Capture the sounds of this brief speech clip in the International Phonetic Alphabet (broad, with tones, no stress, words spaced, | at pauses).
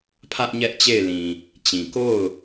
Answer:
pʰä˦ʔ ɲɛ˦ʔt͡ɕe˦˨ɪ̯lĩ˨ | t͡ɕĩ˨ ko˦˨ʊ̯